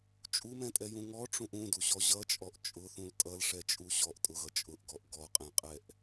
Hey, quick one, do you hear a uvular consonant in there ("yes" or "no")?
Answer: yes